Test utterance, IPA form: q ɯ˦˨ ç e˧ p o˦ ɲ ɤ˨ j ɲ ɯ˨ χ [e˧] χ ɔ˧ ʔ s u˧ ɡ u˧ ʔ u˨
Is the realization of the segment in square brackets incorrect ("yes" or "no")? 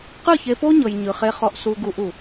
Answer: no